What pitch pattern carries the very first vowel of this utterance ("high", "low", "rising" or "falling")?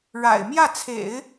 low